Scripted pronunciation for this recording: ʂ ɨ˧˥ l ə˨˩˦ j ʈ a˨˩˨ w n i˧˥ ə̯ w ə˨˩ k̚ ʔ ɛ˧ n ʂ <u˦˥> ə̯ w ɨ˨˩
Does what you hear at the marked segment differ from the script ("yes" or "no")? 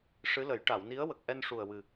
yes